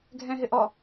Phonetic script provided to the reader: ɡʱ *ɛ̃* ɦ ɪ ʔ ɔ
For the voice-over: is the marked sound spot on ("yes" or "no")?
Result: yes